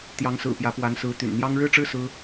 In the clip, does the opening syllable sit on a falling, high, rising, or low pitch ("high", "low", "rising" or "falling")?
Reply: rising